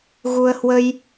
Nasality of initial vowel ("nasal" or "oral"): oral